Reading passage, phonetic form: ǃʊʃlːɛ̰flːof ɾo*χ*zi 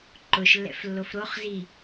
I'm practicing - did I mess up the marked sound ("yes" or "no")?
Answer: no